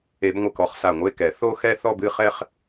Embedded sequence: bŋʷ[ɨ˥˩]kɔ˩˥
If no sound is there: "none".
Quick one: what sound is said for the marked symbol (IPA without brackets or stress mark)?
ɨ˧˩